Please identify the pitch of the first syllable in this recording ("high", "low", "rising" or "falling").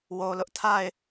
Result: low